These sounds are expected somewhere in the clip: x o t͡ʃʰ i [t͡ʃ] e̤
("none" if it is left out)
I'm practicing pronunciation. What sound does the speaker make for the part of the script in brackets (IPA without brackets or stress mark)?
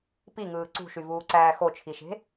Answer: ʃ